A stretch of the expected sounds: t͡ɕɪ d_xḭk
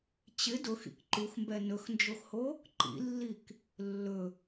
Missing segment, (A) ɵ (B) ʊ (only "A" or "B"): B